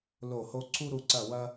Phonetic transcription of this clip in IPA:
lo˧˩ho˧ ǀʰu˧ɾu˧˩ǀɐ˧˩wɐ˧

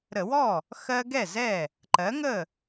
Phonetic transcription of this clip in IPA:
ɾə˧˩˧wɔ˥˩ | xɜ˦ɡɛ˥˩zɛ˥˩ | ǃɜ˩˥ŋə˥˩

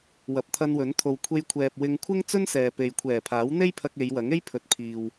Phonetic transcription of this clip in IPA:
wɐ˨p̚t̪ʰɐ˧nwɵ˨˥n t̪ʰo˨wkʷʰe˧jkʷʰɛː˨p̚ wɪ˧ŋ kʷʰɪ˥ŋt͡sɵ˥nsɛː˨pe˨j kʷʰɛː˨˩pʰaː˨˥wn̪e˥j pʰɐ˧k̚e˨˧jwɐ˨˥ŋe˥j pʰɵ˨t̚pʰiː˨w

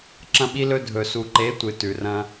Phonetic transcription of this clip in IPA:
ǁɐ̃˦ɓi˦lɵ˦ dʱɵ˨ su˨ǃe˨˦ tʷɨ˨ tʉ˨rɐ̃˦

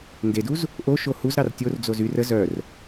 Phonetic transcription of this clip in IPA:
ndeduz | ʔoʃo huzɾɑr tʲord͡zoz yr ə zœr

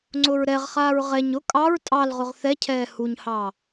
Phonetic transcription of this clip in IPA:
ŋ͡ǀʊɹɾɛʁχaːɹ ʁɛɲ ʊ kʼɑɹ tʼɑlʁʊʁ θɛcʰɛː huɲhɑ

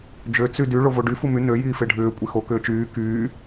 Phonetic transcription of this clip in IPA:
d͡ʒø t͡sydy ɭovoɖy fumy nø jiːfeɖʱʏː kʷʼixo kʏːt͡ʃyː kyː

